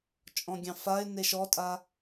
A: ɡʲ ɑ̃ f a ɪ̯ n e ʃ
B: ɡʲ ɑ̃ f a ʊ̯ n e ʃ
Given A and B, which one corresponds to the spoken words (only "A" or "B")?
A